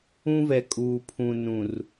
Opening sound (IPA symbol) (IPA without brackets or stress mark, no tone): ũ